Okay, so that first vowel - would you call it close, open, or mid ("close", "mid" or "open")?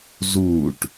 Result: close